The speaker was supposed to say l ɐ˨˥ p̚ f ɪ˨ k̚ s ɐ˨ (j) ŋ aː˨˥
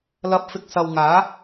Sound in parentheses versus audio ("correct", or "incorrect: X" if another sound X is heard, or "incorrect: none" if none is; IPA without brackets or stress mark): incorrect: w